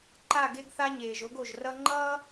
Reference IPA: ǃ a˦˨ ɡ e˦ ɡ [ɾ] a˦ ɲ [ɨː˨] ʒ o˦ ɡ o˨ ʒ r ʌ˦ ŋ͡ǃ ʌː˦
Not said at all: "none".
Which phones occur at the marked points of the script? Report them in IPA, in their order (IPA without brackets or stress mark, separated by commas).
θ, eː˨